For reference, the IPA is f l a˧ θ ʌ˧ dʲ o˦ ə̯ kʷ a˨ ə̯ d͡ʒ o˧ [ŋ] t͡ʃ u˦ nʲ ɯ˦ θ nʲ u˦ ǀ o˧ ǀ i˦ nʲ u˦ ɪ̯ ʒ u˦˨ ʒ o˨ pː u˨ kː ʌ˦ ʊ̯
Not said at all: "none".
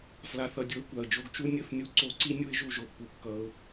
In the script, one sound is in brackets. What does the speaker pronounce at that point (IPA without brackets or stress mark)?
ɡ